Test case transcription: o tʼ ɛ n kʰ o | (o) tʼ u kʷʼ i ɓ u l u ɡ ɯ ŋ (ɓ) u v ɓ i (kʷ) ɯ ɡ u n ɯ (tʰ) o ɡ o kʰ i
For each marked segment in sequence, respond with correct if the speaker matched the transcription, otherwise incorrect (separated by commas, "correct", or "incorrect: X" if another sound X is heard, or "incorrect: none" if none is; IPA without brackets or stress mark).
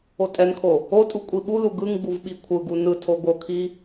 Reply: correct, incorrect: ɡ͡b, incorrect: kʷʰ, correct